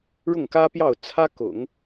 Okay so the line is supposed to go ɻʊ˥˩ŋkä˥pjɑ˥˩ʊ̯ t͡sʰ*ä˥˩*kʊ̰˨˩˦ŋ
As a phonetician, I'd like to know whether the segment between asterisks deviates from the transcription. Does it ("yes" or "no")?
yes